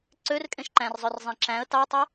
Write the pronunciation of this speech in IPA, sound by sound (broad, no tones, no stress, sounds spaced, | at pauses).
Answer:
ǀ ø r kʼ ẽ ʃ ǃ æ̃ r zˤ ø r zˤ ẽ ǁ æ̃ ə̯ t ɑ ə̯ tˤ y